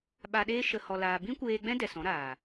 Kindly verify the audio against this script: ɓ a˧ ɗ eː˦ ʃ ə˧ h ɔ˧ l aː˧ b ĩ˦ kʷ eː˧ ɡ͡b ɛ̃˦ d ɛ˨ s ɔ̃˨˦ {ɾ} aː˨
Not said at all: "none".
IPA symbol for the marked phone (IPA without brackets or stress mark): ɾ